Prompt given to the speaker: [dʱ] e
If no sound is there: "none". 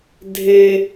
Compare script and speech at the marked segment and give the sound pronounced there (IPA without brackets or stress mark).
dʱ